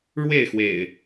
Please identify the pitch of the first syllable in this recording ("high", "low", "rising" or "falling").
falling